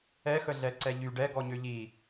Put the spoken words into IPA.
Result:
ɛxəɮɛǀɛ ʎy ɖɛ ɡɔɲøʎi

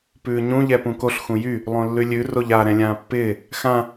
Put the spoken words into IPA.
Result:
pʉːɲũ ʎɛpũkoɬ xũjy | lˠõlːʉlʲʉ roʎa ɾɛ̃lʲãːpːɪː | xã

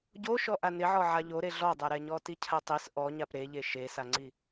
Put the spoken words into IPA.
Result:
ɟoʃɔ ʔanɪʕɔ ʕaʎoɾe ɮɔdˤɛɾɛɲɔ ticʰatˤis ʔɔɲap ɾeʎe ʃesaŋ͡ǀi

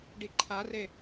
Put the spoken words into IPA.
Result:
ɖiǃʰare

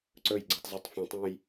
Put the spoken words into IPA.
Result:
ǀɵj ɡ͡ǀutˤzutˤfũtˤũj

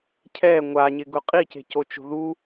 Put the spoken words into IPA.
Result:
cʰɛ ŋʷaɲɪɡʊ qʼice̤cot͡ʃo̤ ðu

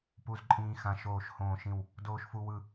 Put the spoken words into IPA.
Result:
pu˧zǃʼĩː˧xã˧ ʃoː˧˩ʃhõː˧˩ʃĩ˧˩w | doː˧ʃfu˧wɯ˧˩

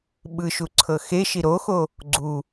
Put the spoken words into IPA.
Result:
ɓɯʃuǀʰɤ xeʃi ɾoxo | ɡ͡ǀu

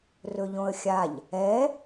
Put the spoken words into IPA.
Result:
rɵʎõə̯xʲaʎ | ɛ

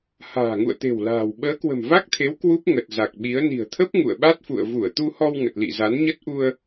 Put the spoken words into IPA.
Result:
ha̤ː˨˩ŋṵ˧˨ə̯t̪e̤˨˩w la̤ː˨˩w ɓəː˨˦kwə̤˨˩mva˦˥k̚t̪ʰe˨˦w kwu˦˥p̚ ŋə˨˩t̚za˨˩k̚ɓi˨˦ə̯ ni̤˨˩ə̯t̪ʰə˦˥p̚ ŋṵ˧˨ə̯ɓa˦˥t̚fṵ˧˨ə̯ vu˧˩ə̯t̪u˧hɔ˧w ŋə˨˩t̚lḭ˧˨za˨˦n ɲə˦˥t̚ʔu˧ə̯

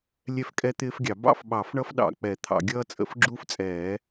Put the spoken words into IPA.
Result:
lʲɛ˦fkʼɛ˦t̪ɪː˦fɡʲɑ˨˩˦ bɑ̰˦fɓɑ˨˩˦fɳʌ˦fɗɑ̰˨˩˦ k͡pɛ˨˩˦t̪ʰɑ̰˨˩˦ ɡʲʌː˦t͡sʼə̰˨˩˦fɡ͡ǁuː˦ft͡sʼɛː˨˩˦

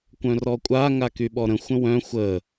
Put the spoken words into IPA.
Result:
kʷœ̃rɔkʷʼa ŋakyɓɔɾə̃ xʷə̃wœ̃ xʷə

